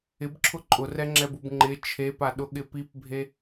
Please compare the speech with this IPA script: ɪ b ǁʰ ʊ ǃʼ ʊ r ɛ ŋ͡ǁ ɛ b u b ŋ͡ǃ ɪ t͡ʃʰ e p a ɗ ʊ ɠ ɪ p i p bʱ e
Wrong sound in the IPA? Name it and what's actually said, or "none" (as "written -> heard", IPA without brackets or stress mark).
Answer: none